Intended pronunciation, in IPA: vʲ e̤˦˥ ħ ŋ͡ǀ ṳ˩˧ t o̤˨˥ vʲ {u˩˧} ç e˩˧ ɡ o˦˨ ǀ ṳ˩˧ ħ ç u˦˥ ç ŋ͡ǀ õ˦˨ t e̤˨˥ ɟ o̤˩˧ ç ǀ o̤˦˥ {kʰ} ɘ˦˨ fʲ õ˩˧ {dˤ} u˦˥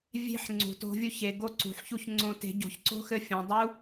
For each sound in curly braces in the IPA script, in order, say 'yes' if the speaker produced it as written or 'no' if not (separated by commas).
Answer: no, no, yes